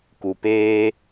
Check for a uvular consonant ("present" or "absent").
absent